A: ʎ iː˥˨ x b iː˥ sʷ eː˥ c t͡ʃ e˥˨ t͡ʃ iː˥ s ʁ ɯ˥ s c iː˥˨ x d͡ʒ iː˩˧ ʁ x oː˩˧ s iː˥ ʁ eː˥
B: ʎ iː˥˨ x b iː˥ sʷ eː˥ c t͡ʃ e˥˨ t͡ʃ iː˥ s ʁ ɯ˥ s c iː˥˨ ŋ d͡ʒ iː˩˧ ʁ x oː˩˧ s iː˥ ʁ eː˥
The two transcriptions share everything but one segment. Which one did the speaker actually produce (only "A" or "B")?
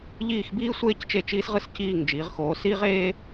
B